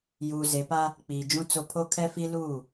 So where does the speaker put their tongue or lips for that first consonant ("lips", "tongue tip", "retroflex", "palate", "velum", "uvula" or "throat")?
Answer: palate